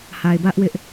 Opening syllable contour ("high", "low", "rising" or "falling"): low